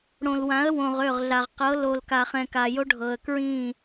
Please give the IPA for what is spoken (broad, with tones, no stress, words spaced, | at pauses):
ɽõ˨lwã˨˦ə̯ wõ˨ʁ ø˦˨ʁɮa˨ʁ qɤ˨˦lo˨lka˨χɛ̃˨ ka˨jo˦ ɖʱɤ˨ə̯kɹĩ˦˨